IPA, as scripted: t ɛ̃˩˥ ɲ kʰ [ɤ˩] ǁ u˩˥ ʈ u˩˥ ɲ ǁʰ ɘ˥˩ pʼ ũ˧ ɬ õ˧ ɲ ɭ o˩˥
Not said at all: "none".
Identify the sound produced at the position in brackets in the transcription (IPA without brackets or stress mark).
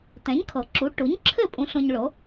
ɤ˩